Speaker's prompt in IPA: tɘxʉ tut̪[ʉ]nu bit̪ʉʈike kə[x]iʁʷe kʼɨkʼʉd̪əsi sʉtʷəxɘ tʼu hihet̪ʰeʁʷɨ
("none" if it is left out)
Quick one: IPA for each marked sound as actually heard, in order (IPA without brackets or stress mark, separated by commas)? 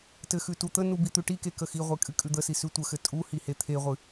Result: ə, x